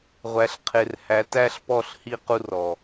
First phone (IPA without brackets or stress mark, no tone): ʁʷ